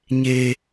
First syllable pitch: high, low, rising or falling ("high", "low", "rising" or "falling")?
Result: low